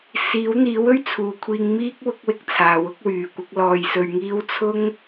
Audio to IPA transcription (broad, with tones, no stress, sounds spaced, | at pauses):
s iː˨˥ w n̪ iː˨˥ w ɵ˥ ɥ t͡sʰ uː˨ kʷʰ iː˧ ŋ m iː˥ k̚ w ʊ˥ k̚ w ɪ˧ k̚ t͡sʰ aː˨ w ʊ˥ k̚ w yː˨ kʷ ɪ˨˥ k̚ l ɔː˧ j s ɵ˧ ɥ ŋ iː˥ w t͡sʰ ʊ˥ ŋ